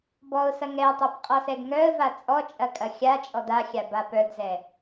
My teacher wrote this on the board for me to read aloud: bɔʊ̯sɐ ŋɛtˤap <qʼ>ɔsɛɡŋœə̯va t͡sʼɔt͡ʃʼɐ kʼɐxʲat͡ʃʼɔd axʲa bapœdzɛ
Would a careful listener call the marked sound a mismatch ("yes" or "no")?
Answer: no